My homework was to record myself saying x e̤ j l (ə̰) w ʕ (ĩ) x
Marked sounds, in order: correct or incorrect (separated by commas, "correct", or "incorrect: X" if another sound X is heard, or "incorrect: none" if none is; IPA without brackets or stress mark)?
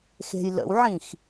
correct, correct